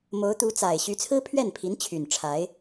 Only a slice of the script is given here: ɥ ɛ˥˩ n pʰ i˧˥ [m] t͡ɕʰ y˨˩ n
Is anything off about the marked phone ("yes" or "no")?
yes